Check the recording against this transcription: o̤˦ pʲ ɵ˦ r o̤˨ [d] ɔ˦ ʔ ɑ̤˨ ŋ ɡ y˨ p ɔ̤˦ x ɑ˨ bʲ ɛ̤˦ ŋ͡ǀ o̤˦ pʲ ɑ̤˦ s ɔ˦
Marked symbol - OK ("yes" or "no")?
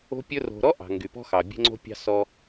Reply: no